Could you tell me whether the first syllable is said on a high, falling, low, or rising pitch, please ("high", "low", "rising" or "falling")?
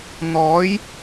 rising